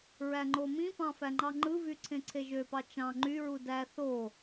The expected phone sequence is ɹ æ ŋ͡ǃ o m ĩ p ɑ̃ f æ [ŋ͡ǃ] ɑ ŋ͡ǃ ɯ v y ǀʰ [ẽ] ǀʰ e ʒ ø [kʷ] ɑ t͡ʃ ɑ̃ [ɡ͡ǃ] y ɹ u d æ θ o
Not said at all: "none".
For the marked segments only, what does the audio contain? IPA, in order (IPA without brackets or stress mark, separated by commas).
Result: ŋ͡ǃ, ẽ, p, ŋ͡ǃ